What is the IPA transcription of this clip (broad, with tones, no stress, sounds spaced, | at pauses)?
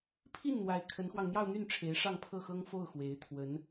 pʰ i˥˩ n n̪ w a˧˥ ɪ̯ kʰ ə˧˥ n x w ɑ˧ ŋ n̪ j ɑ˥˧ ʊ̯ n̪ y˥˩ n ʈ͡ʂʰ e˧˥ ɪ̯ ʂ ɑ˥˧ ŋ pʰ ɤ˥˩ x ɤ˥ ŋ f o˥˩ ʊ̯ x w e˧˥ ɪ̯ t̪ʰ w ə˧˥ n